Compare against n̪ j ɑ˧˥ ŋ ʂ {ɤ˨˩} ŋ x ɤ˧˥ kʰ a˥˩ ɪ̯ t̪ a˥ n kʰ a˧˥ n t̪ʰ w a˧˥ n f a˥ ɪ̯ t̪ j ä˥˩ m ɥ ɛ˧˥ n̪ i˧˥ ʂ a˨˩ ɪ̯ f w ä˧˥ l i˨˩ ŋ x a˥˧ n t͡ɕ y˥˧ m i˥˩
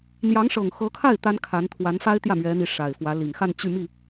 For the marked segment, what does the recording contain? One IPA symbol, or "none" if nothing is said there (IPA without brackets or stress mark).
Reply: ɤ˨˩